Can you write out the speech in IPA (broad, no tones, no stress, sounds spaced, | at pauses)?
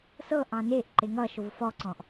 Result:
s ɤ ʔ ɑ̃ n e ʔ ǃ e ŋ ʌ ʃ o v f ɔ ǀ ɔ̃ ʔ